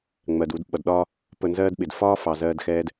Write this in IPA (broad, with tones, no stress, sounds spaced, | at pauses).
ŋ͡m ɜ˨ d u˧ d ɓ ʌ˨ d ɗ ɒː˦ | p ə˧ n z ɜː˦ d ɓ ɪ˨ d f ɒː˦ f ɑ˨ z ɜː˧ d x ɛː˧ d